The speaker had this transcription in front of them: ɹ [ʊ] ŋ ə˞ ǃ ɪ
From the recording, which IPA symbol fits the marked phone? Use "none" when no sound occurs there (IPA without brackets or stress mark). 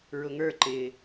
ʊ